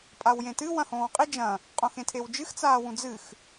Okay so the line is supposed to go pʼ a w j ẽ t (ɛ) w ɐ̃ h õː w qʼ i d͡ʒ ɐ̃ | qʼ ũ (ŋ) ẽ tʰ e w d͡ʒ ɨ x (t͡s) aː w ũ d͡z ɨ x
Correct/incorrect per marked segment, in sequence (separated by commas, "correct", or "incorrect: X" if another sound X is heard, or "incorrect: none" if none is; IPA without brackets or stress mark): incorrect: ɨ, incorrect: x, correct